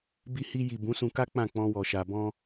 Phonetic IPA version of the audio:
bi˧hi˧ji˨ bũ˨˦sũ˧ka˦ k͡pã˦˨ k͡pɔ̃˧wɔ˨ʃa˨ bɔ̃˧

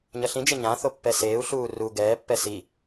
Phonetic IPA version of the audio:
ɲʌɬĩd͡ʒe ɲãθo pːɛseːu̯ɬuː ru ɡɛːpːɛ si

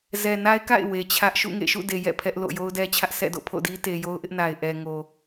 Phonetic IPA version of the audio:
zɛ˨na˦ɪ̯ka̰˦˨ɪ̯ we˨t͡ɕʰä˦ʔ ʃṵ˦˨ŋḛ˦˨ʃṵ˦˨de˨ jɛ̰˦˨pʰɛ˦ʔ lo̰˦˨ jo˦ʊ̯dɛ˦t͡ɕʰä˦ʔ sɛ̰˦˨do̰˦˨pʰo̰˦˨ di˦te˨jo˦ʊ̯ʔɪ˦ʔ na˨ɪ̯ʔɛ˨ ŋo˨

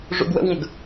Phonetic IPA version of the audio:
ʐṵɡwə̰wŋəɡ

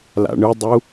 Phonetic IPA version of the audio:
la̰ɳɯdˤu

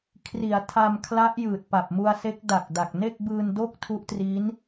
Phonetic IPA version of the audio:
kʰri˩˦a̯ tʰa˧mkʰla˦˥ʔ jɯː˨˩t̚pa˨˩p̚mu˧a̯se˦˥k̚ da˨˩k̚ da˨˩k̚ne˥˩k̚bɯː˧n do˥˩k̚ tʰu˦˥ʔtriː˦˥n

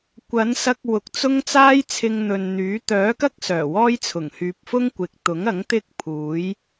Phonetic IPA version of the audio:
kʷɐ˨˥nsɐ˧k̚ wʊ˨k̚t͡sʊ˥ŋ t͡saː˥jt͡sʰɪ˧ŋn̪ɵ˨n n̪yː˨˥ t̪œː˨˥kɐ˥k̚ sœː˨˩wɔː˥jt͡sʰʊ˨˩ŋ hyː˨p̚fʊ˥ŋ kʷɪ˨k̚ t̪ʊ˨˥ŋɐ˨˥ŋ t̪ɪ˥k̚pʰuː˨˥j

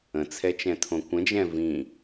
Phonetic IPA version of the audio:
ə̃t͡sʰɛt͡ʃɛ̃tʰõ kʷə̃d͡ʒɛ̃ vĩ

